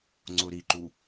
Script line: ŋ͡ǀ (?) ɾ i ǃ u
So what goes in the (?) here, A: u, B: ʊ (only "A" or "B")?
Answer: B